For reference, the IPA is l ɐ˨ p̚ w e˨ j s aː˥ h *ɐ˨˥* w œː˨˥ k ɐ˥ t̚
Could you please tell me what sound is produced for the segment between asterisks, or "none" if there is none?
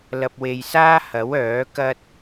ɐ˨˥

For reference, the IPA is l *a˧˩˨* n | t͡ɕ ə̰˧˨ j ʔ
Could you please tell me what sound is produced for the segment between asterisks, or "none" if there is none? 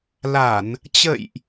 a˧˩˨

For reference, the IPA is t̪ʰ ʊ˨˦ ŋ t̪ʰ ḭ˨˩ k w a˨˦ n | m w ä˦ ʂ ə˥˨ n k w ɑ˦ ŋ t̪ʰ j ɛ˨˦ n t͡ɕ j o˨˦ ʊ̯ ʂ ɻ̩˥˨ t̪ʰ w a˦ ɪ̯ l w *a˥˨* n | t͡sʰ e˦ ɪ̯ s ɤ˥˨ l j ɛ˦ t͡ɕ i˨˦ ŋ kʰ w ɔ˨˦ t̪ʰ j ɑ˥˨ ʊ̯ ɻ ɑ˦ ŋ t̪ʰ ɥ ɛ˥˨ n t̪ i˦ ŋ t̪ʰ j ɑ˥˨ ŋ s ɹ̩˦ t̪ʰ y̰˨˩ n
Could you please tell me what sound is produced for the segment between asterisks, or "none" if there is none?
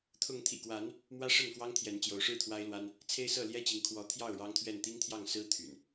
a˦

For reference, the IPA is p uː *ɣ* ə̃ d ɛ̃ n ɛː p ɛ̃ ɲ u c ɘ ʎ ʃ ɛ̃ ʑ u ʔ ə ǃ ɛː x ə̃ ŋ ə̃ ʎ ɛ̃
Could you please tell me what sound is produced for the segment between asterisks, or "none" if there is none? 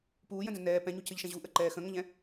j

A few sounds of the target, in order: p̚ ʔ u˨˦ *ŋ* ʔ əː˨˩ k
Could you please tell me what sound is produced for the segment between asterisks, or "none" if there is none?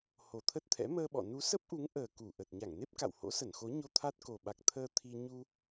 ŋ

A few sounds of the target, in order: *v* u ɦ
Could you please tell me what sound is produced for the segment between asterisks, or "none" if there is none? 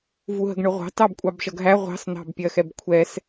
v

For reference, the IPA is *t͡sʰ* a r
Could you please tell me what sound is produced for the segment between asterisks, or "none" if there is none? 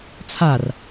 t͡sʰ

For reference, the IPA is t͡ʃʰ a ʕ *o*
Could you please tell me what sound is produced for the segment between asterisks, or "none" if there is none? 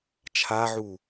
u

